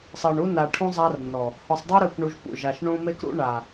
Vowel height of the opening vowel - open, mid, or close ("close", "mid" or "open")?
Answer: mid